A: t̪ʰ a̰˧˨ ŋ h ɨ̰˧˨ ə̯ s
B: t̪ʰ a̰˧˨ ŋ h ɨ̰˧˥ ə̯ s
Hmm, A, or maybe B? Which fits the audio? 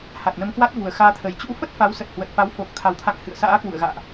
A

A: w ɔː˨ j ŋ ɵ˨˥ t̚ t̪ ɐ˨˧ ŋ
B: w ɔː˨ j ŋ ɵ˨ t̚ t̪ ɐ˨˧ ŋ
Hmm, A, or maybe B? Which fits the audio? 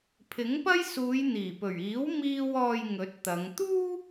A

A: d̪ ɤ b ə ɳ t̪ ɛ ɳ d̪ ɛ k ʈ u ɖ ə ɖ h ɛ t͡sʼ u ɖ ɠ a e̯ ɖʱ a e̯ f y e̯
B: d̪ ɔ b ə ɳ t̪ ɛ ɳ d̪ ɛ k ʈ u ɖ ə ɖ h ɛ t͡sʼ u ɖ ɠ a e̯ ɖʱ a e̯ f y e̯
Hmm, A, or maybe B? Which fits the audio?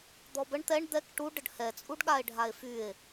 B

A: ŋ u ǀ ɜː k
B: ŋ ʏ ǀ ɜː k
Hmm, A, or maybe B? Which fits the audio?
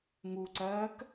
A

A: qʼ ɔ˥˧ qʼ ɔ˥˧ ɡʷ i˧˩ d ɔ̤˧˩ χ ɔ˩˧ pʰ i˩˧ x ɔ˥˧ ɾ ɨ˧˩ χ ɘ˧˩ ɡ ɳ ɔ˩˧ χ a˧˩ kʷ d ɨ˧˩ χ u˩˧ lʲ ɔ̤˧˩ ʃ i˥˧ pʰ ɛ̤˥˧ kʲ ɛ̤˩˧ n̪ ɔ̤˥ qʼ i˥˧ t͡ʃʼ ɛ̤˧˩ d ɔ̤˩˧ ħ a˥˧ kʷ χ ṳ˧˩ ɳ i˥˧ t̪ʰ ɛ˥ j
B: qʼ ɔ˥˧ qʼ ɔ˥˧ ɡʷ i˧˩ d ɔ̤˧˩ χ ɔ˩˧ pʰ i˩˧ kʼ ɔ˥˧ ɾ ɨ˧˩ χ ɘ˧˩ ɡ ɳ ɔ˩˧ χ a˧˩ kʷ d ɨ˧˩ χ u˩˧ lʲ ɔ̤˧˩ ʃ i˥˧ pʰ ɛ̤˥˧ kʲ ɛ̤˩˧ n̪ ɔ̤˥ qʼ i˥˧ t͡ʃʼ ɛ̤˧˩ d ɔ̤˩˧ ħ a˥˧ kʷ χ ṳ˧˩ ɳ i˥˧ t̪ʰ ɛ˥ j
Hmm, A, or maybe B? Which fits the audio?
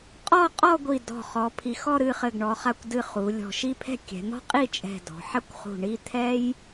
A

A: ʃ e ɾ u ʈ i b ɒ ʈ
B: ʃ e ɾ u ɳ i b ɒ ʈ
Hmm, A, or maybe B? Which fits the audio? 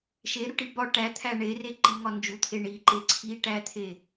A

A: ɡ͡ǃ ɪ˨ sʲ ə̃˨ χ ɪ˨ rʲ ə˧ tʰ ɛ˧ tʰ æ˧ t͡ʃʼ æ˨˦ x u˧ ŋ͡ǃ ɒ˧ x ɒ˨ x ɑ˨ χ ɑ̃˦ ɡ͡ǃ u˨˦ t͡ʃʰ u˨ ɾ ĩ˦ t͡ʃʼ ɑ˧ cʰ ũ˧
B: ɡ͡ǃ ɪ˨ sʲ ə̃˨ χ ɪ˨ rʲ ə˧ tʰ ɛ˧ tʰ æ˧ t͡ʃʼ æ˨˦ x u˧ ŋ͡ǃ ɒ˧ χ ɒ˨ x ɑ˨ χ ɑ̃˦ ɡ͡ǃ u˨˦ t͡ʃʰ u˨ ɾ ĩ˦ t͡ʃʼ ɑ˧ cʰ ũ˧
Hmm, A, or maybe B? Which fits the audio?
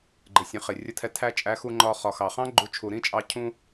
B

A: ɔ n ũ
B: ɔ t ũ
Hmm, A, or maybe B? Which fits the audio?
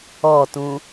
B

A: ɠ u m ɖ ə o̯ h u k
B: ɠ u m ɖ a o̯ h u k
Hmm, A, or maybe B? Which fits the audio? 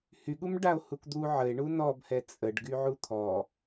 B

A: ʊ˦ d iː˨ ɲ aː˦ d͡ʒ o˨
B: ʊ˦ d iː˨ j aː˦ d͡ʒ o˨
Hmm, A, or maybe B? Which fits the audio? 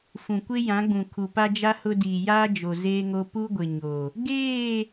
B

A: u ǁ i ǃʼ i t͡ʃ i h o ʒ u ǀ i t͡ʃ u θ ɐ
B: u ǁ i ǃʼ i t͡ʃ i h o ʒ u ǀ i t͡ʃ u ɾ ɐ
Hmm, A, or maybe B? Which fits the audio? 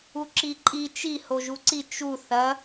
A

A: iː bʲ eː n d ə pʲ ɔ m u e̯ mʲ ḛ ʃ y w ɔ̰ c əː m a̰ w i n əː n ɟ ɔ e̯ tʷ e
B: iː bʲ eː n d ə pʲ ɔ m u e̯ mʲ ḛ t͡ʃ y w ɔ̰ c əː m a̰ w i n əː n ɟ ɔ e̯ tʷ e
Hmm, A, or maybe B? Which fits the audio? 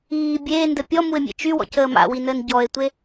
B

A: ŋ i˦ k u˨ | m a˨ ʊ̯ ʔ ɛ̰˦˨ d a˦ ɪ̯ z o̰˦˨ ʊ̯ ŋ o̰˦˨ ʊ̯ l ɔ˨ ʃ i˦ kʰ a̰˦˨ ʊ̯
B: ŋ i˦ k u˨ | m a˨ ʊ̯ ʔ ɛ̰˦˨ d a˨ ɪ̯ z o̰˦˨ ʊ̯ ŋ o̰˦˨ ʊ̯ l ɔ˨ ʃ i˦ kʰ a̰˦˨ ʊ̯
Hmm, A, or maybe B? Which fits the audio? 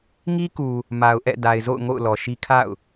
B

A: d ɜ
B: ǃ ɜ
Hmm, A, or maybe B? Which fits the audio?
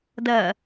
A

